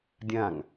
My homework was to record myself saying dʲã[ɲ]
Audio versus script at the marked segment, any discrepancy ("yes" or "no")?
yes